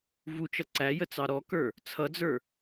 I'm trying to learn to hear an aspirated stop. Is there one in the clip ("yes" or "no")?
yes